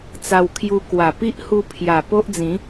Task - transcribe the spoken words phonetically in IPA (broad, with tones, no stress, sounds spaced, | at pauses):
t͡s a˧ w kʰ j u˧ k w a˨˩ p i˦ ʔ h u˧ pʰ j a˨˩ p o˦ ʔ d͡z ĩ˨˦